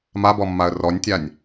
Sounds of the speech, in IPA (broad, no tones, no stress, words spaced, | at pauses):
mabɔmːaə̯ rɔnʲtʲanʲ